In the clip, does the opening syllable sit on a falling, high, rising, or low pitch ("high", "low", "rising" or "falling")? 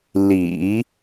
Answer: low